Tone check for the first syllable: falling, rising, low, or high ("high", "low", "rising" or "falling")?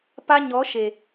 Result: high